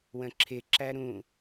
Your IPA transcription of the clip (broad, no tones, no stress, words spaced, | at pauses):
wə̃ǁʰɪ ǁæɾũ